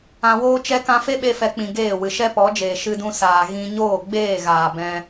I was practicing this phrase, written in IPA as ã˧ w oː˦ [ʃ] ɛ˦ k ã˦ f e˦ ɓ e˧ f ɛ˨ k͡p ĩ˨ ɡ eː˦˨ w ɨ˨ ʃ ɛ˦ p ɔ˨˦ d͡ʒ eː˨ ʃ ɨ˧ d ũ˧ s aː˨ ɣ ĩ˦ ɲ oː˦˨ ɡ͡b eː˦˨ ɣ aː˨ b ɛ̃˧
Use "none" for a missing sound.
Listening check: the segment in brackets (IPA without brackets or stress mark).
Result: t͡ʃ